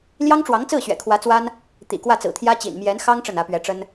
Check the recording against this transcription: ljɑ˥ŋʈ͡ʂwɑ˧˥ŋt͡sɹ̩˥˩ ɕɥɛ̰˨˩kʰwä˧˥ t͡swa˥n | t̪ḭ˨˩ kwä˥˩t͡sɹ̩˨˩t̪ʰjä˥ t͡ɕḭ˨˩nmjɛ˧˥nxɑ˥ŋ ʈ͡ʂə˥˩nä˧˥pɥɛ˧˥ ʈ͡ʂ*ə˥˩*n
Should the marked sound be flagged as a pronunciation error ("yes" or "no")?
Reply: yes